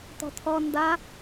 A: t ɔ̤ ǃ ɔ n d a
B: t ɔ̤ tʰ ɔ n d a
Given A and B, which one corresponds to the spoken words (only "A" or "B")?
B